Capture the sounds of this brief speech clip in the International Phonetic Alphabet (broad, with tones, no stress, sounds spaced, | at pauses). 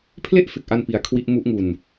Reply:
pʰ l e˥˩ ʔ f e˨˩ k̚ ʔ a˧ n p i˧ a̯ kʰ w i˦˥ ʔ m u˦˥ ʔ ŋ u˧ n